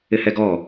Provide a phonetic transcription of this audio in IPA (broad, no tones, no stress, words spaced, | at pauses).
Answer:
ɪhɛɡɔ